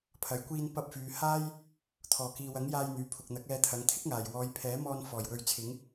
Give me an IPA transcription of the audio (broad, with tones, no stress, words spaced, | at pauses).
pʰɐ˨jkʷiː˧n pɐ˧p̚fyː˨ haː˥j | t̪ʰɔː˨˩kiː˨wɐ˨˥ŋ jaː˧jn̪yː˨pʰʊ˨k̚n̪ɐ˨˥k̚ ɛː˧t̪ʰɐ˨˧ŋ t̪ʰɪ˥k̚ŋaː˨˩j wɔː˨˧jpʰɛː˨˥mɔː˧n fɔː˨˩jwɵ˨˥ɥt͡sʰɪ˨˧ŋ